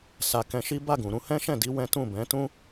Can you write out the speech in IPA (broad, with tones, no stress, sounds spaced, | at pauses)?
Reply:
s a˨ k ɛ̃˧ ʃ i˦ b a˦˨ ɡ ũ˨ ɾ ũ˧ h ɛ̃˦ ʃ ɛ̃˦˨ d i˨˦ w ɛ̃˦ t ũ˦˨ b ɛ̃˨˦ t ũ˦